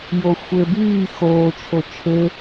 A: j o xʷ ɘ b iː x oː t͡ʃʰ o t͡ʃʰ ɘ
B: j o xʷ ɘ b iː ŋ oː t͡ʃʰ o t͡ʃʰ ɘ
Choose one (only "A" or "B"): A